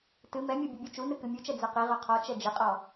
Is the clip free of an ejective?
no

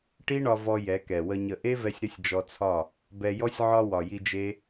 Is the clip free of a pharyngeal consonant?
no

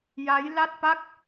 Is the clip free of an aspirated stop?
yes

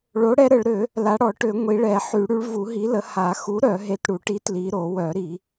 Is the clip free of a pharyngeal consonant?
no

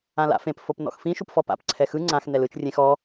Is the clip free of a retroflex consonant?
yes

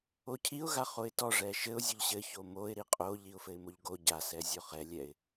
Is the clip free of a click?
yes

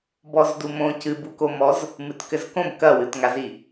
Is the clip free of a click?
yes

